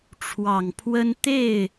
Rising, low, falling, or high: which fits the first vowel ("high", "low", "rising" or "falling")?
low